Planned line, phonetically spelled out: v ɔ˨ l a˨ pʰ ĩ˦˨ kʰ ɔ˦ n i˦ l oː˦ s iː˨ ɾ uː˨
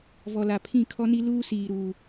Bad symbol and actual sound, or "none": oː˦ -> uː˦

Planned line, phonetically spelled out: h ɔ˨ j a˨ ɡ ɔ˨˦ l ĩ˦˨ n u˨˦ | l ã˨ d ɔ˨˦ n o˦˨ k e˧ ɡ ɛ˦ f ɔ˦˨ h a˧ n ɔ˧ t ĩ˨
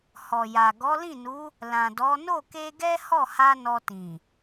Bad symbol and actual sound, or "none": f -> h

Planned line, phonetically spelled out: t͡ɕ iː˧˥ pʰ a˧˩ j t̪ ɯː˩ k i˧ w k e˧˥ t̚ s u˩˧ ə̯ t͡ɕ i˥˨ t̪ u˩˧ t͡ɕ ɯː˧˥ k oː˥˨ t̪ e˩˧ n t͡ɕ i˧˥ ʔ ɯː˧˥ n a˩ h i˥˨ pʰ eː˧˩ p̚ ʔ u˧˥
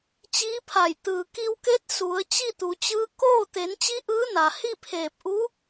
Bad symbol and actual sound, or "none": none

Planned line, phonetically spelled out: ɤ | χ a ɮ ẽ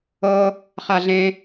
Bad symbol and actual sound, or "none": none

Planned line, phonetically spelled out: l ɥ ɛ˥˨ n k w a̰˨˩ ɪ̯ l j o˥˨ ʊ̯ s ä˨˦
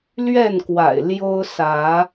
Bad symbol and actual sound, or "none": o˥˨ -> o˦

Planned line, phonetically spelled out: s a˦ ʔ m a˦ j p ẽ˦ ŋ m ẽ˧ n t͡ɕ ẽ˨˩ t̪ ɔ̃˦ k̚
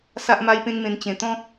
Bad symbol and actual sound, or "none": none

